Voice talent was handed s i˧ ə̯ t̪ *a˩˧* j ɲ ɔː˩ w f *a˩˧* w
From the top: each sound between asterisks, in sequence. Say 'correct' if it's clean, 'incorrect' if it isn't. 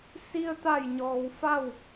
incorrect, incorrect

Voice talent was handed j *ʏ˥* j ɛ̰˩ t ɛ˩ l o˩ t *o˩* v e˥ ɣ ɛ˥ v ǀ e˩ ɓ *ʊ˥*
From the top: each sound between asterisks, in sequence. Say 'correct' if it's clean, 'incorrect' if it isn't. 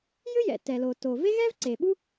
correct, correct, incorrect

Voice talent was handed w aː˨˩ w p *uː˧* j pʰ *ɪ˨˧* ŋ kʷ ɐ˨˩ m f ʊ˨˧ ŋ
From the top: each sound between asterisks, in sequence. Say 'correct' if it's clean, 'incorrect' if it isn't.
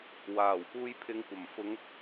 correct, correct

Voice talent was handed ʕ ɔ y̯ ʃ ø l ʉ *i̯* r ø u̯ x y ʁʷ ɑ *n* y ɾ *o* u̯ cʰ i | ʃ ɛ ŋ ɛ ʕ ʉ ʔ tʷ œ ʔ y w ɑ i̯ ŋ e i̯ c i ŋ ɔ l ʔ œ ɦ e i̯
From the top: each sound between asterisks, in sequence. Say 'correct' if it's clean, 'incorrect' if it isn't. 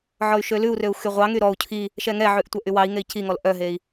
incorrect, incorrect, incorrect

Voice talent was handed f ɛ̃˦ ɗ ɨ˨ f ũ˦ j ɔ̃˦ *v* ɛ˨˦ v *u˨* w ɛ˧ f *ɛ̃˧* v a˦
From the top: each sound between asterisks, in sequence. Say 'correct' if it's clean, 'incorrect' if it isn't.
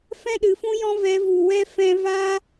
correct, correct, correct

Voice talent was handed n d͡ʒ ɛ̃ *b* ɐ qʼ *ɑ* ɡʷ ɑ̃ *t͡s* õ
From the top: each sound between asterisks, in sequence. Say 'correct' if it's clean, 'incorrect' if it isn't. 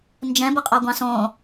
correct, correct, incorrect

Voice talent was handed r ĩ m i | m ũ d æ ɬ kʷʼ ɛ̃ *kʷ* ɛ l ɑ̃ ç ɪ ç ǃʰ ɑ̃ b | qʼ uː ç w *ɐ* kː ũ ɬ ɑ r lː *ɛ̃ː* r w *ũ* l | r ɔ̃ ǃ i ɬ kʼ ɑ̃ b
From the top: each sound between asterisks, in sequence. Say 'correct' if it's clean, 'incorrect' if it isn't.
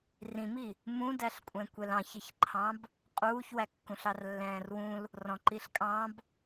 correct, incorrect, correct, correct

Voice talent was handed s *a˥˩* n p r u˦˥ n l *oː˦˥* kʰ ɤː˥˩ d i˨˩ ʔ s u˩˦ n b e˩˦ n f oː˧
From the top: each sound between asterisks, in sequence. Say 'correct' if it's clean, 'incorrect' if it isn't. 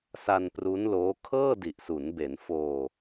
incorrect, correct

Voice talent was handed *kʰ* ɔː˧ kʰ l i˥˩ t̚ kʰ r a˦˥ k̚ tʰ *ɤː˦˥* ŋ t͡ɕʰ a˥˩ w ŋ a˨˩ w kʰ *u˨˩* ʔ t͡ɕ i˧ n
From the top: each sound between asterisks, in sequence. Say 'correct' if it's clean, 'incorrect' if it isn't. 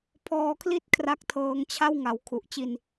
incorrect, incorrect, correct

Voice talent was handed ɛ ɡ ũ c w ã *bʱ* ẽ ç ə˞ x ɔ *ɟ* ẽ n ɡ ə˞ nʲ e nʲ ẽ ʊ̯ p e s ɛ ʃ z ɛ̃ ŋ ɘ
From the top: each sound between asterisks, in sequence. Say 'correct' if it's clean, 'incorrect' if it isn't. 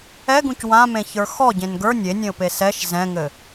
incorrect, correct

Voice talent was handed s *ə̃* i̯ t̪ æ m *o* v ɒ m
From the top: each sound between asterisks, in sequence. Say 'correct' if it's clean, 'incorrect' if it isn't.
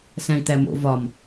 incorrect, incorrect

